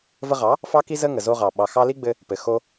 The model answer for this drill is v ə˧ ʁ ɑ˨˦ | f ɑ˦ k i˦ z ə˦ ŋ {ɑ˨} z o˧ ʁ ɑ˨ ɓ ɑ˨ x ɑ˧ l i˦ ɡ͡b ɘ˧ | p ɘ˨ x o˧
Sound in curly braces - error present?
yes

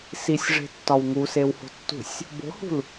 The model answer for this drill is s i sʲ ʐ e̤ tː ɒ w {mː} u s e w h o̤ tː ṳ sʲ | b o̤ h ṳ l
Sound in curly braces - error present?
yes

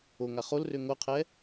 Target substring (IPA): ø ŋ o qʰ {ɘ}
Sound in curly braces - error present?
yes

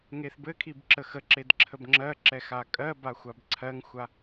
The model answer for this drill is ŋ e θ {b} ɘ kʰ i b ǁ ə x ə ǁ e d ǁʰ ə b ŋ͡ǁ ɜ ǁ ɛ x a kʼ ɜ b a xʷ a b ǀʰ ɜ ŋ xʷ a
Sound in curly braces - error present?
no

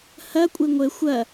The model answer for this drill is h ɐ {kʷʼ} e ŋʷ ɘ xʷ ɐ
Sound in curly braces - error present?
no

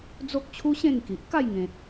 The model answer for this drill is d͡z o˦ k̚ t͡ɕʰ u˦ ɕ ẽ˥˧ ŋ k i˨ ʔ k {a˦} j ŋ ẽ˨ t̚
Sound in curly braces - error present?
yes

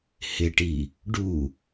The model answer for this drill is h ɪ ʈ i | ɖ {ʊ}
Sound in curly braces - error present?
yes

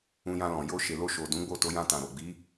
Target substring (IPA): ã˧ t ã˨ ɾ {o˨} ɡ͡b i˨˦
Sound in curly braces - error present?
no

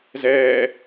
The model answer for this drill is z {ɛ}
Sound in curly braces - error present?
yes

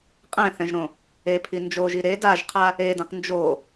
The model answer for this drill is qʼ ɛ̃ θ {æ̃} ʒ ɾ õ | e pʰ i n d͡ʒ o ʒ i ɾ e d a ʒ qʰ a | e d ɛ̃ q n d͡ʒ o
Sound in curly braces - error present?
yes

